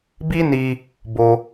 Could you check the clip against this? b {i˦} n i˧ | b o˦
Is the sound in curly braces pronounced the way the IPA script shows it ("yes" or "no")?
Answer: yes